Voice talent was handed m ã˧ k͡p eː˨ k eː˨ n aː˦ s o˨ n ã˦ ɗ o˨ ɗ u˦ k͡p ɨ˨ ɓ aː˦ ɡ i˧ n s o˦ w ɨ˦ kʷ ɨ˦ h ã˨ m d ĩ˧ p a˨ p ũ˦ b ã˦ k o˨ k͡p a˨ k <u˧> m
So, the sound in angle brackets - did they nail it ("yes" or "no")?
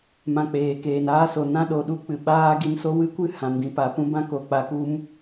yes